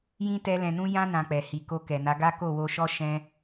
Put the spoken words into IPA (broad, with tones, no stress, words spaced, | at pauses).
jĩ˦ tɛ˦ lɛ̃˧nũ˦ jã˦ nã˧k͡pɛ˨ hi˨ ko˧kɛ˨na˨˦ɡa˦ ko˦˨wo˧ʃɔ˦ ʃɛ̃˦